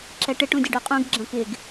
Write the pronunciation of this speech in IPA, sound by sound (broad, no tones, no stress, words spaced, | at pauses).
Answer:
ǁɛʈɪ ʈũdʲɐɖoqʼũɡ ɡ͡ǁɐ̃kɪɡ